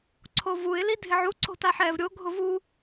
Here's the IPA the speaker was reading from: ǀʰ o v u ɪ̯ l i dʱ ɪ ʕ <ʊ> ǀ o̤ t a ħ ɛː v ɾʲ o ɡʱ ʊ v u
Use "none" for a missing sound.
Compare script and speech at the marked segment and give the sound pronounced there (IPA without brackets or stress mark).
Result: u